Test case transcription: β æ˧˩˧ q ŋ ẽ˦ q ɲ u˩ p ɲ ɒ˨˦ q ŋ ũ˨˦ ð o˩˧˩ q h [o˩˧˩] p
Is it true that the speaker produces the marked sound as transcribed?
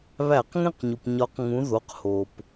no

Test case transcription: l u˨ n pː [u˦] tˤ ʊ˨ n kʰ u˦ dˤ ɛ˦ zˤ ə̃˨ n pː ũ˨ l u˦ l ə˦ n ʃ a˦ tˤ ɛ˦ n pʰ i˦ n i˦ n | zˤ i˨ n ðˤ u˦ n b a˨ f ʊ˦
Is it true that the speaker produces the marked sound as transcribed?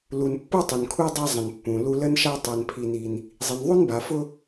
yes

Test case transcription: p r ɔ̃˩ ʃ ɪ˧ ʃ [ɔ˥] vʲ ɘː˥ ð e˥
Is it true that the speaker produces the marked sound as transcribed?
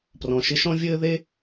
no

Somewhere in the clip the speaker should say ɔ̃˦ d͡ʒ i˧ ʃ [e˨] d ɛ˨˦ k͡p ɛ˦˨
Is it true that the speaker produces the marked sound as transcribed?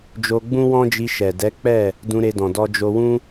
no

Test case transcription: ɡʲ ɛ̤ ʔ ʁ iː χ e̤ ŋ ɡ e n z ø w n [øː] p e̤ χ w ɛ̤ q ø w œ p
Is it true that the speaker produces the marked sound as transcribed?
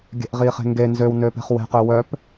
yes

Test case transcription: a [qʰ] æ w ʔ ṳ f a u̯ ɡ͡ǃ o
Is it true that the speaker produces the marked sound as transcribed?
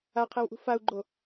yes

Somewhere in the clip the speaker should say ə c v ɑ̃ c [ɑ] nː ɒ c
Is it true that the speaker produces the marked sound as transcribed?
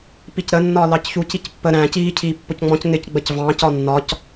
no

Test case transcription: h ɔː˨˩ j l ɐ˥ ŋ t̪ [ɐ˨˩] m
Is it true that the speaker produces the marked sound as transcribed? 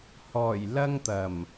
yes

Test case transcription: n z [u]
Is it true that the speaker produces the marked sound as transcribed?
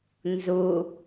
yes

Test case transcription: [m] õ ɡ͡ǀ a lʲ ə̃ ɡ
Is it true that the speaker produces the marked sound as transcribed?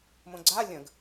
yes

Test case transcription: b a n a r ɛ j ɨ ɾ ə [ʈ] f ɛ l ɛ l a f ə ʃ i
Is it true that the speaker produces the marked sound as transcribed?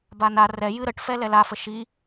yes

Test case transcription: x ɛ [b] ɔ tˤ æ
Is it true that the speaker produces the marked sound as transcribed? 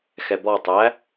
yes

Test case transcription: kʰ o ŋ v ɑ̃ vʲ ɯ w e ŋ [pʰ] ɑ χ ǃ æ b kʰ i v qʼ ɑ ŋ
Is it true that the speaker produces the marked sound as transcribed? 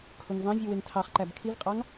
no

